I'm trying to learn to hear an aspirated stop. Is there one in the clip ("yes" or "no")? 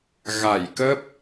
no